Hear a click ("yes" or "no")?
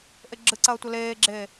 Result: yes